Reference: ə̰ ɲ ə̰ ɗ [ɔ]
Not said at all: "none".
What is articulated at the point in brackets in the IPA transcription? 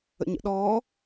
ɔː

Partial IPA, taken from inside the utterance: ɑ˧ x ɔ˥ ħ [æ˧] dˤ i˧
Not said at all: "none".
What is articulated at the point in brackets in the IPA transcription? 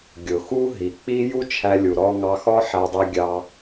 æ˧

